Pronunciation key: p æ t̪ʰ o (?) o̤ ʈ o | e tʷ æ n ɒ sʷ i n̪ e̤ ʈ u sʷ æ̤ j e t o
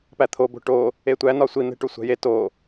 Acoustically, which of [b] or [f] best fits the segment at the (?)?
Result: b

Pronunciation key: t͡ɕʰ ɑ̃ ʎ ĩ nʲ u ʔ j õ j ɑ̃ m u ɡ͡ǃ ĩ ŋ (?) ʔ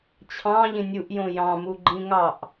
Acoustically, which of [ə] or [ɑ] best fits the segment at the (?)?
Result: ɑ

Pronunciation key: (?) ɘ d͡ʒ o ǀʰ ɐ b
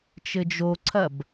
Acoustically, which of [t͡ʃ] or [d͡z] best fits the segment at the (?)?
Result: t͡ʃ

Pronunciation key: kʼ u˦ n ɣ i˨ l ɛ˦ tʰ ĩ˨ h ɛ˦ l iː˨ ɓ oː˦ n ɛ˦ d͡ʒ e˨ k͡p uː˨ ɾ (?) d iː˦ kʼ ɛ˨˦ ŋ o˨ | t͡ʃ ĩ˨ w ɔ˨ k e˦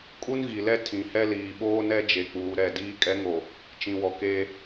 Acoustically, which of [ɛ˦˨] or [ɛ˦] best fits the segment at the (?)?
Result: ɛ˦˨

